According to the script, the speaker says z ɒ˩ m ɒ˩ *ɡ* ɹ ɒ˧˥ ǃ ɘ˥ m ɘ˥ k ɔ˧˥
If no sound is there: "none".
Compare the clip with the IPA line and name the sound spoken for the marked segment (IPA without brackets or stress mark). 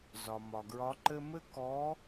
ɡ